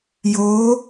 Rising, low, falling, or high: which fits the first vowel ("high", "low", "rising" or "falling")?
rising